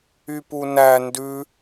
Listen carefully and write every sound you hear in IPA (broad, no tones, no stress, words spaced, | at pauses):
ypunæ ndʉ